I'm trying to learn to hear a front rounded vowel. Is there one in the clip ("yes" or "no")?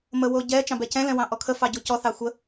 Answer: no